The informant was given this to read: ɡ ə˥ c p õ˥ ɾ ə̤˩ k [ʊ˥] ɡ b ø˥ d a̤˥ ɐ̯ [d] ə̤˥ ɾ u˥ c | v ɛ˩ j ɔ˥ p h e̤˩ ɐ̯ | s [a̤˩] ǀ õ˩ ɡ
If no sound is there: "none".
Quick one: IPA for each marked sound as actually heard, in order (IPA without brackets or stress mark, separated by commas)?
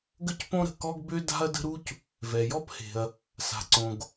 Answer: ɔ˥, d, a̤˩